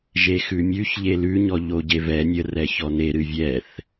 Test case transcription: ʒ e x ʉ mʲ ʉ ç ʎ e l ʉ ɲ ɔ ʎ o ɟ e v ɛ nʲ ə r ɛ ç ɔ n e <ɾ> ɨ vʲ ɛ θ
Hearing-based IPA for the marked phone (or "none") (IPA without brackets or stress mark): ɾ